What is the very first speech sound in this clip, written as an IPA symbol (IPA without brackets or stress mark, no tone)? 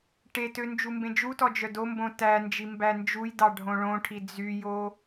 ʈ